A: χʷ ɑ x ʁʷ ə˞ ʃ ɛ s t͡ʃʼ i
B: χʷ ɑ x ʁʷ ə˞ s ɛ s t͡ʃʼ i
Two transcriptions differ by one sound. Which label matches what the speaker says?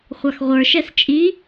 A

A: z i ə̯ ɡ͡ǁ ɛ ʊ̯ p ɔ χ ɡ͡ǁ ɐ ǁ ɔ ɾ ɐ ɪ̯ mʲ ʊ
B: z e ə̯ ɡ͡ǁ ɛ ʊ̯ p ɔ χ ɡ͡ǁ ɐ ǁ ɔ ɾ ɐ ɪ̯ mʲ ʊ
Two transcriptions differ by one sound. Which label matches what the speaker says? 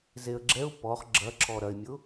B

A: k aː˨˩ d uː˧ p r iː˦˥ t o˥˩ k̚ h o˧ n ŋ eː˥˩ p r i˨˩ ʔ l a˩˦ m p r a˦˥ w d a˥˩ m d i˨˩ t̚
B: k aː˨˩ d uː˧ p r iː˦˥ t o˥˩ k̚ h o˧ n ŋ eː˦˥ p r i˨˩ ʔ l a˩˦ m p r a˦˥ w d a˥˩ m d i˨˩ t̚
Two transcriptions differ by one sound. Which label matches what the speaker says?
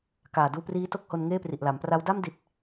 A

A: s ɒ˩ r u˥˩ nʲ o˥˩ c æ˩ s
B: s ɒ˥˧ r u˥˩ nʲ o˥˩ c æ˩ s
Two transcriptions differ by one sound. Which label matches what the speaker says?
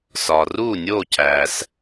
A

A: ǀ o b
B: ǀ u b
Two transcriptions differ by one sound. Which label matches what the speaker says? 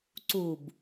B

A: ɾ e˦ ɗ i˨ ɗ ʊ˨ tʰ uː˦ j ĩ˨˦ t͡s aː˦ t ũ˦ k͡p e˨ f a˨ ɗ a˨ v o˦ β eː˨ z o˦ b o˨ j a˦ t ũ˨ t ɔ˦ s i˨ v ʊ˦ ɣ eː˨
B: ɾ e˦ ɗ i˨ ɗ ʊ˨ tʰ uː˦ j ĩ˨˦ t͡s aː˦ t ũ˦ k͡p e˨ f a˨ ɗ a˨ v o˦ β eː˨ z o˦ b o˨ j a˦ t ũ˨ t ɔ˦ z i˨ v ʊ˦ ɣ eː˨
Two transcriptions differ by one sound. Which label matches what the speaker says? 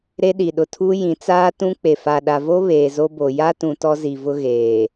B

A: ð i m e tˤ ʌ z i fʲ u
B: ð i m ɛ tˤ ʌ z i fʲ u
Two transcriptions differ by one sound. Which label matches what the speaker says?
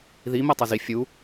B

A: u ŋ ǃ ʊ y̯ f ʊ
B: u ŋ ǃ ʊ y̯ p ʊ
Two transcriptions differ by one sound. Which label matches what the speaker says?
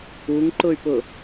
B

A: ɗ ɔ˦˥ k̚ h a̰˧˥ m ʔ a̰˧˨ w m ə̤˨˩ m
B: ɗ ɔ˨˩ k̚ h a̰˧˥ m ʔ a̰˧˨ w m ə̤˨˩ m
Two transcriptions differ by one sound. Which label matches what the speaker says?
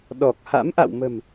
B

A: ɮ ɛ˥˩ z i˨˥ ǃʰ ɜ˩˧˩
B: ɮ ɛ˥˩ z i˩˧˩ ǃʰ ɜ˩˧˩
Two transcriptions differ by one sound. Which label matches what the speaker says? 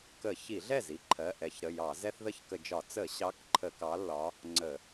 A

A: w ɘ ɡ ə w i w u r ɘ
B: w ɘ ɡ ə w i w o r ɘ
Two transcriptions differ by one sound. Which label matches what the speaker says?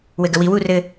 A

